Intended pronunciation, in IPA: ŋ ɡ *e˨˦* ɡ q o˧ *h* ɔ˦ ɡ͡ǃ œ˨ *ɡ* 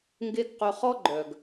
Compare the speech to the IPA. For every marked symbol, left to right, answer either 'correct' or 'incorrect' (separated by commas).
incorrect, incorrect, correct